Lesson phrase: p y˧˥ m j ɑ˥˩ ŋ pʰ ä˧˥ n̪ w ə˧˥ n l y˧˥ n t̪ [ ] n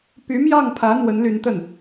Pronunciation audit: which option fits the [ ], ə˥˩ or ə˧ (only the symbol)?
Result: ə˥˩